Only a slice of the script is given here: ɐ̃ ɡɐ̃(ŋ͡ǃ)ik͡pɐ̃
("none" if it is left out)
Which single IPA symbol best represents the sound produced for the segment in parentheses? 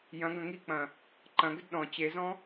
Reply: ŋ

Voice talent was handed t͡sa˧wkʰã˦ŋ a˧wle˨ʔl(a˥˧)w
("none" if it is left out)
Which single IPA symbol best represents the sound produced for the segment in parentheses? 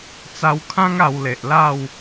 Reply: a˥˧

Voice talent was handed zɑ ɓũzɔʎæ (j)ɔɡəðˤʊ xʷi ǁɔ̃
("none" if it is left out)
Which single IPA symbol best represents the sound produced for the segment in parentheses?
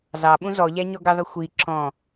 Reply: ɲ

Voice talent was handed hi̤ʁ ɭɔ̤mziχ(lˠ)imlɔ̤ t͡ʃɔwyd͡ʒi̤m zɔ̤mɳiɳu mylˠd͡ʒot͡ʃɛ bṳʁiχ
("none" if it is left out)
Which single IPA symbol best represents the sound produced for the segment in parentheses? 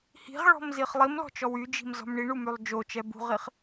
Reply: lˠ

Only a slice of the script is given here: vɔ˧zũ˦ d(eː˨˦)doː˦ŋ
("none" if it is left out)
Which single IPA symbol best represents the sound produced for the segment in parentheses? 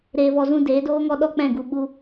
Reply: eː˨˦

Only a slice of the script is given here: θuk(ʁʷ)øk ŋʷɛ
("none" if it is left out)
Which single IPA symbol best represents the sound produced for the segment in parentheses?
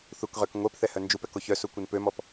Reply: ʁ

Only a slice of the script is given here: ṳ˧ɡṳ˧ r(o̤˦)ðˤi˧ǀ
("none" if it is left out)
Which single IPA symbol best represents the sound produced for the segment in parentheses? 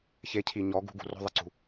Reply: o̤˦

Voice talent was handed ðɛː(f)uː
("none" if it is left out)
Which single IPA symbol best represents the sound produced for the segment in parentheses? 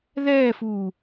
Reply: f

